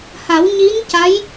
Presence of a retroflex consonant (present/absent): absent